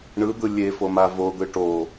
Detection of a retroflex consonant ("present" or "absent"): present